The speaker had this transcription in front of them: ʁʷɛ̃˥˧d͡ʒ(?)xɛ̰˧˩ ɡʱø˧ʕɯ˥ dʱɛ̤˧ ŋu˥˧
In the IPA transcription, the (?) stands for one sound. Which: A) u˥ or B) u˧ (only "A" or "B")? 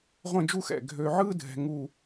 A